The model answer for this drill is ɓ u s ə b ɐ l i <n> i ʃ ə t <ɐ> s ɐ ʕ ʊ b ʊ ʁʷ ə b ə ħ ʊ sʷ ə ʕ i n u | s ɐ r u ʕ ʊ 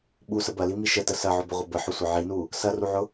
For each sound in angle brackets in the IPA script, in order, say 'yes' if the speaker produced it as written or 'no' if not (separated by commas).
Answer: no, no